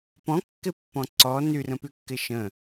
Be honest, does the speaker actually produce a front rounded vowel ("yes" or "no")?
yes